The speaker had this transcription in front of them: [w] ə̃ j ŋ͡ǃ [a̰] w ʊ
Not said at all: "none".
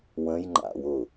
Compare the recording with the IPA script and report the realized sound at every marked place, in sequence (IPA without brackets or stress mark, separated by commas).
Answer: w, a̰